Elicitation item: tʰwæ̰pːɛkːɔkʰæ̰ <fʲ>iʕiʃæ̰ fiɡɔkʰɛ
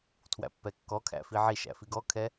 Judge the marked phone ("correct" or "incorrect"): incorrect